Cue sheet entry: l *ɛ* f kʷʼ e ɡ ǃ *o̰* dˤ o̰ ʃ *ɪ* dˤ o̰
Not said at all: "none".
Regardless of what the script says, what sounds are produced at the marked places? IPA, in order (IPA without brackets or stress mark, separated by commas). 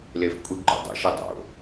e, o̰, i